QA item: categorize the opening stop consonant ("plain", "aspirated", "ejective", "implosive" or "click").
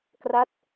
plain